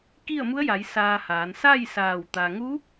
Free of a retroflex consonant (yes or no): yes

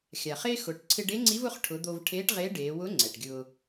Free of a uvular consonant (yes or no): no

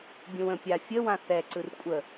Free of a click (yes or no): no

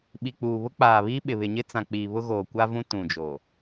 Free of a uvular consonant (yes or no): yes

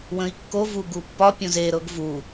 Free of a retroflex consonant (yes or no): yes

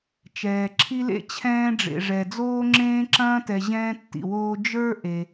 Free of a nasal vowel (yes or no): no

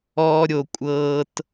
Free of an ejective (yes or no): no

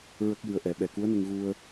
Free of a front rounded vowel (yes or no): yes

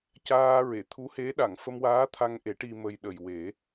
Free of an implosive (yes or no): no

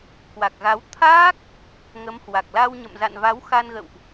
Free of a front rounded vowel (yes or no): yes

